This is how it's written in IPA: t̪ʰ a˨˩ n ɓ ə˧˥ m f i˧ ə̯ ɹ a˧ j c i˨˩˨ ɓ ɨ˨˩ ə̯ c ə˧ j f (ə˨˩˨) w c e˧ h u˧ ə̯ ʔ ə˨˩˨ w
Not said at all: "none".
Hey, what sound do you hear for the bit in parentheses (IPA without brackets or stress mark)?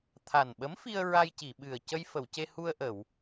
ə˨˩˨